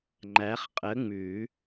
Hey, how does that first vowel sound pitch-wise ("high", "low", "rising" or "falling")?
rising